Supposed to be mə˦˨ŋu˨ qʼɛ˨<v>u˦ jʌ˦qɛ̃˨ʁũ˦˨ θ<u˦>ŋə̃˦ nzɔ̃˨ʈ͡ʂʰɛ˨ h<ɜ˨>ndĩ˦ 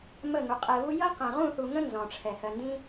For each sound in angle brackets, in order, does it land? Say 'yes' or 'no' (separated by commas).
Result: no, no, yes